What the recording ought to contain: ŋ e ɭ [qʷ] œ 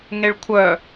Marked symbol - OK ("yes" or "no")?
no